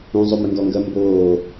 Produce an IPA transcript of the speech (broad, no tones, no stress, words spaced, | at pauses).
ũzˤo mɪŋɡɔŋɡɜ mboː